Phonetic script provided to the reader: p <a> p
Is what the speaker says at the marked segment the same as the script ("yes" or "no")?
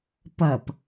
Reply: no